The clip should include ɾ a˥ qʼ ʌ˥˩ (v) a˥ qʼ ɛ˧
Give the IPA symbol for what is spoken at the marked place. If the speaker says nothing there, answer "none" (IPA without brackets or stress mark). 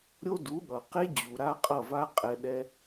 v